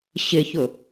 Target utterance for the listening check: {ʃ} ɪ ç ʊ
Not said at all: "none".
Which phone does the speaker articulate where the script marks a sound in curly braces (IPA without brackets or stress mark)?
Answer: ɕ